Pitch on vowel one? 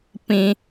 high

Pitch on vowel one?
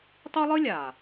high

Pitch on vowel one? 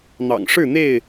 low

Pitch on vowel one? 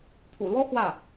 low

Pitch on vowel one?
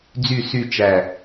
low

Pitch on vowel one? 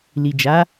low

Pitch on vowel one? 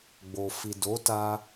low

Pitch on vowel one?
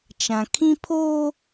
low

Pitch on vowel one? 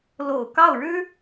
low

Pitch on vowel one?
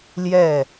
falling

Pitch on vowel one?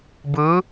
rising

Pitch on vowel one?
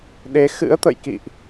rising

